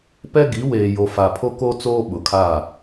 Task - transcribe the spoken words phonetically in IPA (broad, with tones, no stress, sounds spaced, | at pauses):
p ɛ˦ ɡ i˨˦ w eː˨ j o˨ f a˨ pʰ o˦ k o˦ t͡s oː˦ ɓ ʊ˨ kʰ a˦˨